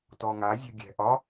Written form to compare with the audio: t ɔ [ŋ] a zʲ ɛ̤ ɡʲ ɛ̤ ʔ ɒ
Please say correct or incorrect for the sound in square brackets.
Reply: correct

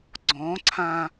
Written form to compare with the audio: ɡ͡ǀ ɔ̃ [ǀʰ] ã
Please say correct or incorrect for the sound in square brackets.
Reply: correct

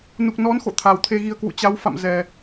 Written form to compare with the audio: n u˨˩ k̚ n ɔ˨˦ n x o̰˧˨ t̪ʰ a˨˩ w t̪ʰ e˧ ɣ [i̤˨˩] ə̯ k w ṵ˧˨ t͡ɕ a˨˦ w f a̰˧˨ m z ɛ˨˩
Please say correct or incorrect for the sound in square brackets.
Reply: incorrect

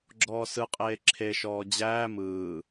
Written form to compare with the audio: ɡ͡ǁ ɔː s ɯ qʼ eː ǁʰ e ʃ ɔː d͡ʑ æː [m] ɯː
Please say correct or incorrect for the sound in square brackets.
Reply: correct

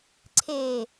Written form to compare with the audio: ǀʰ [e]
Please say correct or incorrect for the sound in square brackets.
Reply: correct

